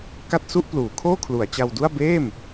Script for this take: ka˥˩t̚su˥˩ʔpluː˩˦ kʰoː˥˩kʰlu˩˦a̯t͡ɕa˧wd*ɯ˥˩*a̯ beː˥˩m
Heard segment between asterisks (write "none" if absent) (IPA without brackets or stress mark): u˥˩